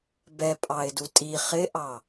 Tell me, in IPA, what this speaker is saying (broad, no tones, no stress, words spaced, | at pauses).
bɛpʼɑɪ̯du tʼi χɪʔɑ